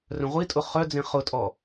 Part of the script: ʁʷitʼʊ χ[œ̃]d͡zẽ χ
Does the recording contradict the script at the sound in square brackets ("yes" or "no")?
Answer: yes